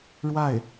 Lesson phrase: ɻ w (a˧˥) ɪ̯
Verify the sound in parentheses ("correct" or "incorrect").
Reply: incorrect